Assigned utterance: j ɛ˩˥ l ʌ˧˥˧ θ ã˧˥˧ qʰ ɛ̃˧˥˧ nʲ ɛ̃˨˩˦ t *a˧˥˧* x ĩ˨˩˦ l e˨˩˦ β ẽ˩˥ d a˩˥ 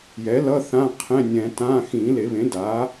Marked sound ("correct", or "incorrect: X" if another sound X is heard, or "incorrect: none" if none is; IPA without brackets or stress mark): incorrect: ã˧˥˧